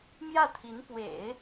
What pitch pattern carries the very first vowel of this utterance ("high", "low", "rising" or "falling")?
falling